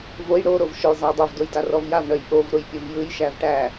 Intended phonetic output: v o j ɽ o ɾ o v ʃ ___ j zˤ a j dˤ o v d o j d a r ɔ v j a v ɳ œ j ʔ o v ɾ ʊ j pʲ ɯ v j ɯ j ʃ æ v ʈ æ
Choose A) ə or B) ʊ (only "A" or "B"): B